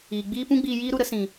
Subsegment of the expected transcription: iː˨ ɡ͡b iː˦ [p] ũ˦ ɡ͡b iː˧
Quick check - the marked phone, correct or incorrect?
correct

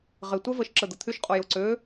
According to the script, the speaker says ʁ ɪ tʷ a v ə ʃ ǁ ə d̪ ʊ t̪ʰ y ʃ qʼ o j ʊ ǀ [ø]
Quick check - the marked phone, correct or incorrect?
correct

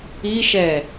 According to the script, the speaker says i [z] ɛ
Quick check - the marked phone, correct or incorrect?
incorrect: ʃ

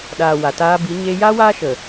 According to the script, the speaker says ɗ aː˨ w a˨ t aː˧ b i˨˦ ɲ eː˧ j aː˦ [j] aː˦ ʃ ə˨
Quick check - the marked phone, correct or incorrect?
incorrect: w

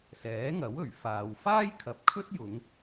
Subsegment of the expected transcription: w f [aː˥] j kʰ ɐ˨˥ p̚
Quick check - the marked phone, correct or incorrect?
correct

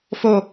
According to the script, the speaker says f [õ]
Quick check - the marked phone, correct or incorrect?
incorrect: o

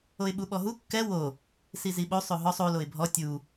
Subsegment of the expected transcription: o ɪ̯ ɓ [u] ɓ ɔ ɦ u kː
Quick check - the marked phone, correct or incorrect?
correct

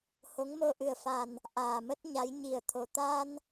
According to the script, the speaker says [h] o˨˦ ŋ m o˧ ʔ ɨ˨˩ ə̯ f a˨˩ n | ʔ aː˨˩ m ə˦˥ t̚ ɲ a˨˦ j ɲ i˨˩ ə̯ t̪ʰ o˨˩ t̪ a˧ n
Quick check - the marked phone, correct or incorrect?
correct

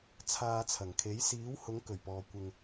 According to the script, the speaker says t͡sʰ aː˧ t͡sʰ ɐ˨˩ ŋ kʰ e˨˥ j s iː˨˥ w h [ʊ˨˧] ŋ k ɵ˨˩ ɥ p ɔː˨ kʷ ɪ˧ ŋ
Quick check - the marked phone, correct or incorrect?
correct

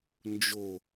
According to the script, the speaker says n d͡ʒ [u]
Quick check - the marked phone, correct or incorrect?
incorrect: o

